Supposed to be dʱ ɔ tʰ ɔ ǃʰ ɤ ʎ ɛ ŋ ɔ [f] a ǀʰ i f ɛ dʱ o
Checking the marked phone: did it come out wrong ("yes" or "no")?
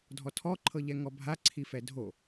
yes